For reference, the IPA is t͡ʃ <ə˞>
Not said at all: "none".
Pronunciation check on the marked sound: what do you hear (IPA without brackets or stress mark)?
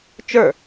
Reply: ə˞